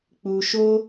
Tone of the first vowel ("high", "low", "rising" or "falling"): low